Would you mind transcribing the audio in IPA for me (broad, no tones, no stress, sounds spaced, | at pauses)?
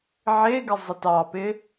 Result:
ʕ e ɡ ɪ zˤ ə t ɑ p ɪ